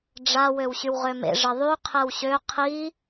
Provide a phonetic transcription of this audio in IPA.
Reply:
ɖ͡ʐ a w ø w ɕ y w ʁ ø m ḛ ʐ ə ðˤ y qʰ ɛ w ɕ ø qʰ i

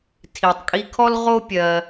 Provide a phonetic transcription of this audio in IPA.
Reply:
tʰ i˧ tˤ kʼ i˥ kʰ ɔ˥ l ʁ o˥ pʲ ɜ˧

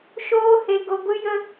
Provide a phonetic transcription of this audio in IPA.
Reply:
ʃ oː˦ h e˧ ɡ o˧ ɡʷ ɨ˦ j ə˦

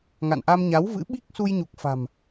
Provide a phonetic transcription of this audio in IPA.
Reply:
ŋ a̰˧˨ n ʔ a˧ m ɲ a˨˦ w v ɨ̰˧˥ ɓ i˦˥ k̚ s u˧ j ɲ u˨˩ k̚ f a̤˨˩ m

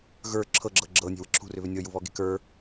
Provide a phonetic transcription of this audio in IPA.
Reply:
ɣ ə˞ ǁʰ ɤ ɡ͡ǁ ɤ ɡ͡ǁ ɤ nʲ e̤ w ə ǁʰ ṳ r ʏ β ʏ nʲ ɤ j u β ɔ ɡ e̤ k ə˞

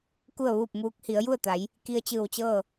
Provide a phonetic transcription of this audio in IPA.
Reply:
k u˥˨ ə̯ ʋ uː˥˨ p̚ m uː˧˥ k̚ h i˩˧ ə̯ j u˥˨ ə̯ t̪ a˩˧ j | k i˧ ə̯ t͡ɕ ɯː˧˩ w t͡ɕ ɤː˥˨

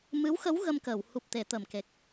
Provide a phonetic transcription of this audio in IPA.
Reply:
m ɨ˧˥ w x ə˧˥ w ɣ ə˧ m k əː˨˩˨ w h u˨˩ p̚ t̪ e˨˩˨ t̪ ə˨˩ m k e˨˩ k̚

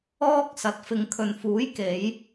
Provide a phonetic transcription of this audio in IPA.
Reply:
ɔː˥ k̚ s ɐ˨˥ t̚ f ɪ˨ ŋ kʰ ɵ˨ n f uː˨˥ j k e˨˧ j

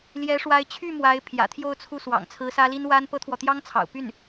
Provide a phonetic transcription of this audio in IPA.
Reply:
l j ɛ˧˥ ʂ w a˧˥ ɪ̯ t͡ɕʰ y˥˩ m w a˧˥ ɪ̯ pʰ j ä̰˨˩ t̪ʰ j o˥˧ ʊ̯ t͡sʰ u˥˩ s w ɑ̰˨˩ ŋ t͡sʰ ɹ̩˧˥ s ä˥ l i˥ n w a˥ n p ɤ˥ t̪ʰ w ɔ˨ t̪ j ɑ˥ ŋ t͡sʰ ɑ̰˨˩ ʊ̯ p y˥˩ n

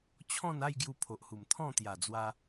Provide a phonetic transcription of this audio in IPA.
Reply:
t͡ɕʰ ɔ̃˥˧ n a˥˧ j ɡ j u˧ pʰ o˨ ʔ h u˨˩ m t̪ʰ ɔ̃˥˧ t̪ j a˨˩ d͡z w a˧

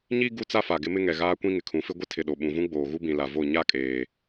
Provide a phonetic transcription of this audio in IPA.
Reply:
ɲ i˦ ɡ u˦ t͡s a˦ f a˨ ɡ ɪ˦ m ɪ˦ ŋ ɛ˨ ɣ aː˦ kʷ ĩ˦ ŋ ɪ˨ kʰ ũ˨˦ f ɪ˦ ɡʷ ɪ˦ tʰ ɪ˨ ɗ o˨ ɓ ũ˨ v ũ˦ ɡ͡b oː˨ ɣ u˦ b ĩ˨ l a˨ v o˦˨ ɲ a˦˨ kʼ eː˨

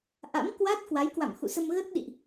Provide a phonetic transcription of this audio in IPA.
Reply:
ʔ a̰˧˥ m k w a˦˥ t̚ k w a˨˦ j k w a̰˧˨ m x ṵ˧˨ s ə˧ m ɣ ə˦˥ t̚ ɗ ḭ˧˨ ʔ

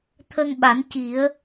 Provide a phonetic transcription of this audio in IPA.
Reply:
t̪ʰ ə˧ ŋ ɓ a˨˩˦ n c i˨˩˦ ə̯

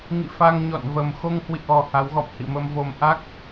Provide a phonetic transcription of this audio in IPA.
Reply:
ŋ ḭ˧˨ f a˧ ŋ ɲ ɔ̰˧˨ n v ə˨˩ m x o˧ ŋ h w ḭ˧˨ ʔ ɔ˨˩ h a˨˦ w ɣ ɔ̰˧˨ m h ḭ˧˨ m ə˧ m v o˧ m ʔ a˦˥ k̚

